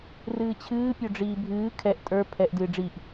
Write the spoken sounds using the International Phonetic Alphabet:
r ɨː t͡ɕʰ ɨː pʲ o ɖ͡ʐ iː bʱ ɨː kʰ ɛ ʔ tʼ ə˞ pʰ ɛ ʔ d ɨː ɖ͡ʐ i ʔ

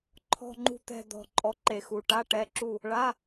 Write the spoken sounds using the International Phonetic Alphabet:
ǃʰ ɔ̤˥˨ ŋ͡ǃ ṳ˥˨ t̪ ɛ̤˥˨ d̪ ɔ̤˧ ǃʼ ɔ˧ ǃ e˧˩ x u˧˩ ʈ a˧˥˧ ʈ ɛ˧˥˧ ǁ u˥˨ | ɭ a˧˥˧

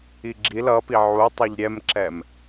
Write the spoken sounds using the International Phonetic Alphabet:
i ɡ͡ǁ i l ʌ p i ʕ u tˤ ɛ ʎ ɾʲ ɛ m ǁ ɛ m

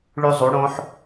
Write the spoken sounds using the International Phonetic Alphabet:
ɭ ʉ˧ zˤ u˩˧ ɽ õ˩˧ ħ

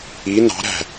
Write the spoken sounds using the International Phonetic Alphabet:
i n ɑ̤ ɾ æ̤

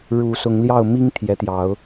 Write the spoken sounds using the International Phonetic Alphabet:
ɻ u˨˦ s ʊ˨˦ ŋ l j ɑ˥˨ ʊ̯ m i˦ ŋ t̪ʰ j ɛ˨˦ t̪ j ɑ˨˦ ʊ̯

